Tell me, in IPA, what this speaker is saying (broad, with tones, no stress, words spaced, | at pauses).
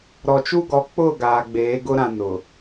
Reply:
ɾɔ˨t͡ʃu˦ɡɔ˨˦ k͡pʊ˦˨ ɡaː˨ɡ͡beː˨˦ɡʊ˦ɾã˨ nʊ˨